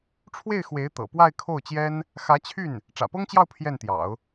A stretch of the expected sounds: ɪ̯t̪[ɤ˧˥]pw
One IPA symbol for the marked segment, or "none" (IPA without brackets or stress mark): ɤ̰˨˩